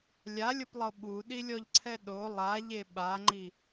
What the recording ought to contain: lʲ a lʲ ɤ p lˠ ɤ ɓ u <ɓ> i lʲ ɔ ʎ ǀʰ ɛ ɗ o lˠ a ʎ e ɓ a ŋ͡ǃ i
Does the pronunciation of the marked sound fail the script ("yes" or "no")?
yes